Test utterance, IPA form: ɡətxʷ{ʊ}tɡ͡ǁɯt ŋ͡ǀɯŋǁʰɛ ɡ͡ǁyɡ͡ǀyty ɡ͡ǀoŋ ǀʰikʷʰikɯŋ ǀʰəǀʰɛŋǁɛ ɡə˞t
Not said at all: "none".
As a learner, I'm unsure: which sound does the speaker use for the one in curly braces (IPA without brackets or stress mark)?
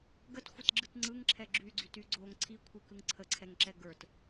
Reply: ə